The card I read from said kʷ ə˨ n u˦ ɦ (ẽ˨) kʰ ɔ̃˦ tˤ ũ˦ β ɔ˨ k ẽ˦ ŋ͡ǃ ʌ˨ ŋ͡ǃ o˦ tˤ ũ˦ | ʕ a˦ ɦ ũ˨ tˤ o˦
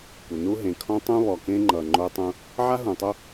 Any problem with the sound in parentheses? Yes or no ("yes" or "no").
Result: no